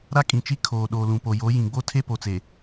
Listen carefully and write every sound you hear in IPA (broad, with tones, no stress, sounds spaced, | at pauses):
ɾ a˦ kʼ ĩ˨ t͡ʃ i˦ kʰ oː˨ ɗ oː˨ l ũ˨ p o˨ j o˨˦ j ĩ˨ ɡ͡b o˦ tʰ e˦ p o˨ t͡s e˨